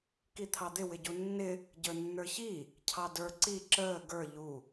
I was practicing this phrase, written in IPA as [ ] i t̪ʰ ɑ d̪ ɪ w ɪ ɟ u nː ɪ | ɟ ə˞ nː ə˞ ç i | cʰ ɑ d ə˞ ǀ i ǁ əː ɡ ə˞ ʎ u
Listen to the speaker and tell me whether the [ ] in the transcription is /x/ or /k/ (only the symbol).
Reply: k